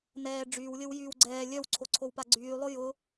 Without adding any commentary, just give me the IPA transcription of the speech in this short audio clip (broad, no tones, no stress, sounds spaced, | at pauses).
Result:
n ɛː ɖ͡ʐ yː w lʲ ə w j yː w ɡ͡ǀ ɛː lʲ œ w ǀʰ o ǀʰ o w p a ɡ͡ǀ yː lˠ ʊ j ʊ